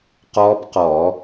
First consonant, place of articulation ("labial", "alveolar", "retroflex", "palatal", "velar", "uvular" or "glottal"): uvular